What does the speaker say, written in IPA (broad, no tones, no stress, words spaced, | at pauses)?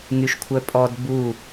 ŋyʃkʷʰœpʼɔd bu